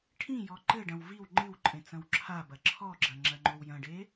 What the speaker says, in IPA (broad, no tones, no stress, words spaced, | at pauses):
ʈʰĩjɔ ǃɘɖɐ̃w viw ŋ͡ǃɨwǃʼẽ t͡sɐ̃wǁʰabɐ ǁʰɔɡ͡ǁɐ ŋ͡ǁɐŋ͡ǃowjɐ̃ɖe